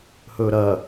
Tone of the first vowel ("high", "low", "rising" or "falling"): low